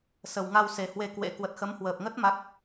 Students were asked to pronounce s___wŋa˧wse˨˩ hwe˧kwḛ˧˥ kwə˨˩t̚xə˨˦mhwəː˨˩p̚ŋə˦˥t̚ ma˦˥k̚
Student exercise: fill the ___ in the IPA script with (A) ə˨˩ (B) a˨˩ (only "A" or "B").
A